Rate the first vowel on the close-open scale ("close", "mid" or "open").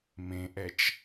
mid